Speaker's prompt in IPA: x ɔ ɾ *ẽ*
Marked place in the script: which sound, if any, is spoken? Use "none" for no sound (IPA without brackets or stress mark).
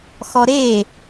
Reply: e